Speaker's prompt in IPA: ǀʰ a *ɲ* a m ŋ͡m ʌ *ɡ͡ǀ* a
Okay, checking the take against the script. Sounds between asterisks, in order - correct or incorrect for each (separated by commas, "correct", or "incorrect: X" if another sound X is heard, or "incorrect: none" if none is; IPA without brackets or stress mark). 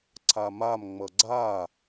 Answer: incorrect: m, correct